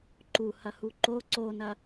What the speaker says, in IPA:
ǃuhɐhu ǃo ǀonɐ

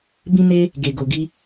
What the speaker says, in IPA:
bĩ˦ne˦ | ɡe˨ɡo˨ɡi˧

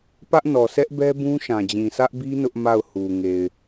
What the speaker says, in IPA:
pä˦ʔnɔ˨sʰɛ˦ʔbɛ˦ bũ˦ʃã˨ d͡ʑĩ˨sʰä˦ʔbi˦ nʊ˦ʔma˦˨ʊ̯ hu˨ŋe˨ɪ̯

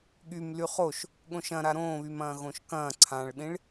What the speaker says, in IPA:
ɠym lyχoʃ | ɠõʃɐ̃ɾa ɾõːβymɐ̃ː ɣõʃkɐ̃ː ǀʰãɭɗĩɭ

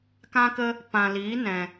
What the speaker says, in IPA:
kã˦kə˦ | pã˨liː˨˦nɛ̃˨

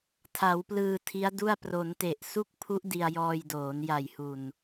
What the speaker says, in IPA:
tʰa˩˦wplɯː˧tʰi˦˥a̯du˥˩a̯ pro˩˦nte˨˩ʔ su˥˩k̚pʰu˦˥ʔ di˧a̯jɔː˧jdoː˩˦n ja˨˩jhu˨˩n

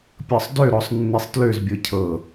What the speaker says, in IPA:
pʲɤsˤdøɾɔsˤ nːisˤtløzbʲɤ cʰɤ

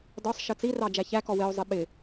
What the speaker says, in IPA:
dɒsˤ ʃɜt͡sirɑ d͡ʒæçækɔ wɪo̯zˤɪ ɓɪ

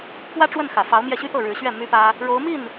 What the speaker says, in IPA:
pwä˥ʈ͡ʂwə˥˩nxä˨˩fɑ˧˥ʊ̯ mjɛ˥˩ɕy˥t̪ɤ˥˩ ɻɻ̩˧˥ɕɥɛ˥˩ my˥pä˥ | ɻo˧˥ʊ̯mi˥˩n

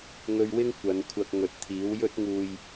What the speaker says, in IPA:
ŋɵ˧ɥwɪ˥ŋ kʷɐ˨˧nkʷʰɐ˧k̚ ŋɵ˨t̚t̪ʰiː˨˥w jɵ˧t̚ŋuː˨j

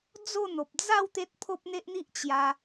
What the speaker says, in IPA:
d͡zo˥˧n̪o˨p̚ d͡za˥˧w t̪e˦t̚ pʰo˦p̚n̪e˦ʔn̪i˦ʔ t͡ɕja˧

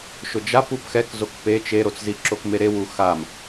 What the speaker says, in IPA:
ʃʊd͡ʒap upxɛkzok pe t͡ʃeɾot͡szi ǁokmeɾewu xam

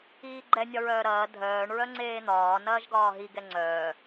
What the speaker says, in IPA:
iːɡ͡ǃɛ nʲɒɹœːɾɐː dʱœːɳ ɹœŋ͡ǀeːn̪ɒː nɐːʒɡɒːɦi ɡɛŋ͡ǀœː

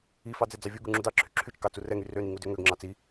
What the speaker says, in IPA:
ifɑ d͡zɛd͡zɑvʲuɡu ŋ͡ǁudɑǁʰy ǁʰyt͡ʃ kɑt͡surɛŋy røni ŋudøŋøɡŋ͡ǁɑ t͡si

